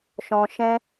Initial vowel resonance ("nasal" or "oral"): nasal